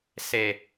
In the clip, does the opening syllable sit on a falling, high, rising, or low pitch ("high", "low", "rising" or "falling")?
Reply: low